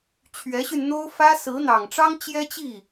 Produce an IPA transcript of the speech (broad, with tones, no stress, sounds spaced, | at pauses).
t͡ɕʰ ɥ ɛ˧˥ ɕ y˧ n n̪ o˥ ʊ̯ f ä˥ s ɹ̩˧˥ n̪ ɑ˨˩ ŋ ʈ͡ʂ ɑ˥ ŋ t͡ɕ j ɛ˥ t͡ɕ i˥˩